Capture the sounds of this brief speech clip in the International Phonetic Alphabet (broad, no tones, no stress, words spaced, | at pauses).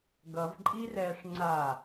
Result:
ɡʌvǃʼirɛːʂ ŋ͡ǀa